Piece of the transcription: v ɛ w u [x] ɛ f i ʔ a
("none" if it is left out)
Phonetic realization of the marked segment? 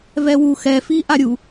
x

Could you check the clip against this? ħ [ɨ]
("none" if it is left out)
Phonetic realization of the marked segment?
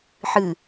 ɨ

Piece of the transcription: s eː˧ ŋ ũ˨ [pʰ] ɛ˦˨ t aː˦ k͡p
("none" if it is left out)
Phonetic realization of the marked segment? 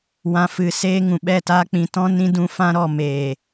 ɓ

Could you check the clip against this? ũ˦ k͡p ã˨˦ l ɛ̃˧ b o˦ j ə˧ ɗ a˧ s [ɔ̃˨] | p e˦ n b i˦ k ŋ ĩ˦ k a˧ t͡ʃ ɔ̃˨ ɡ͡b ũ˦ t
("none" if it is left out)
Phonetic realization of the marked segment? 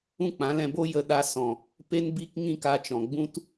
ɔ̃˨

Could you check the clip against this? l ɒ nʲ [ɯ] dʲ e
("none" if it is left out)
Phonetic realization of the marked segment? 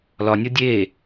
ɤ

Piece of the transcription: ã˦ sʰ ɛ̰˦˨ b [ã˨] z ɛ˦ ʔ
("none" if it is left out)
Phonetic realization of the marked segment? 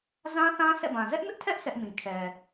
ã˨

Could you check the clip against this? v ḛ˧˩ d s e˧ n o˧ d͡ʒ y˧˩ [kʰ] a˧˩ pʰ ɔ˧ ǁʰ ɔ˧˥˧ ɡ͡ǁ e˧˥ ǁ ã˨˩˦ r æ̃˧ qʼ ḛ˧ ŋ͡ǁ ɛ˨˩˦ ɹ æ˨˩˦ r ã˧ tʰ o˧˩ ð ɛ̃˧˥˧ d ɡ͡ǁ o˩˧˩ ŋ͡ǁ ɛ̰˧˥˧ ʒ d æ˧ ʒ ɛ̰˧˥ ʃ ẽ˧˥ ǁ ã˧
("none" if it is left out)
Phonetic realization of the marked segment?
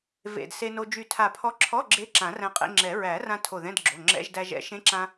tʰ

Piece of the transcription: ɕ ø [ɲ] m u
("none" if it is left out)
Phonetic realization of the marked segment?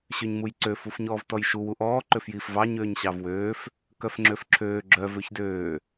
ɲ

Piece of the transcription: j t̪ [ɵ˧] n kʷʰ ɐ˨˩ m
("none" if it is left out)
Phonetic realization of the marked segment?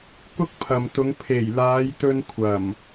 ɵ˧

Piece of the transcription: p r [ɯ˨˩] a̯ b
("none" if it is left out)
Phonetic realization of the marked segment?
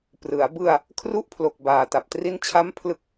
ɯ˩˦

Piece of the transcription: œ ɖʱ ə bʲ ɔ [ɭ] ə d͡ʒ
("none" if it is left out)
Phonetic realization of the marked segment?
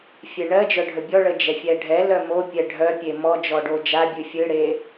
ɭ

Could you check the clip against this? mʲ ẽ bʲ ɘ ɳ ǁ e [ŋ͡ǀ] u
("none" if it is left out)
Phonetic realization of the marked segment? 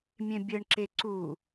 ǀ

